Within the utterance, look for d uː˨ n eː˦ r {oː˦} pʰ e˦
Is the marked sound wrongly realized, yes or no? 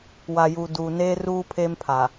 yes